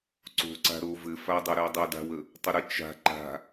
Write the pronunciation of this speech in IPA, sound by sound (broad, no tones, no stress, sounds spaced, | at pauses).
ǀ o̤ ǀ a̤ ɾ o v ɘ f a dˤ ɘ ɾ ɘ w dˤ ə w d a̤ w ə | tˤ ə ɾ ə t͡ʃ a̤ ǃ a̤